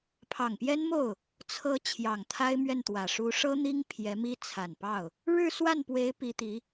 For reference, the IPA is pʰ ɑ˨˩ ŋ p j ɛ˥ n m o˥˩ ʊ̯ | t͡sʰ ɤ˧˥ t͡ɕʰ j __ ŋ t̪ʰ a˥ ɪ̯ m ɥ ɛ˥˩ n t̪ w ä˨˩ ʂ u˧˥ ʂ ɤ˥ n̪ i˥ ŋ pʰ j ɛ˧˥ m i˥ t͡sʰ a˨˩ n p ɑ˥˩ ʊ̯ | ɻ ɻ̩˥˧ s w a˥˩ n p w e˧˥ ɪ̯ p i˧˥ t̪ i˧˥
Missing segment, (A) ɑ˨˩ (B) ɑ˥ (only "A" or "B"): A